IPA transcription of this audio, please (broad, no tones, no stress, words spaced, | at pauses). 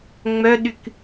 ŋ͡mœɗyk